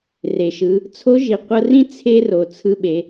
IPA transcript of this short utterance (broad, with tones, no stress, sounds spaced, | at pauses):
r e˩ ʃ ɯ˩˧ | t͡sʰ o˧˥ ʒ i˩ qʷ ɤ˧ r ĩ˥ t͡sʰ e˥ r o˩ t͡sʰ ɯ˧ ɓ e˩˧